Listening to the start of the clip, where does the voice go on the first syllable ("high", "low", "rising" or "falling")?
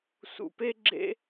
low